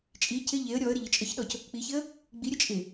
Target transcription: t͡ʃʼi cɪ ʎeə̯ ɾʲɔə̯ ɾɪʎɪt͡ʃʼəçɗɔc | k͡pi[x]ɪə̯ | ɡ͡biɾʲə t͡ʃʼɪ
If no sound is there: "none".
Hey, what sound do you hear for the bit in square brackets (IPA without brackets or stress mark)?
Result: ç